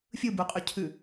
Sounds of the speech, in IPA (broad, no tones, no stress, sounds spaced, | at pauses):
fʲ ɯ b u qʼ ʉ cʰ ʉ